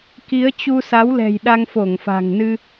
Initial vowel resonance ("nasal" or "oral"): oral